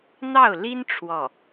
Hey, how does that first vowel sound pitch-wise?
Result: falling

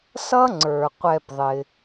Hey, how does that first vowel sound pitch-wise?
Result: high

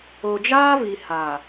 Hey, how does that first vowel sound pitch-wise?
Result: low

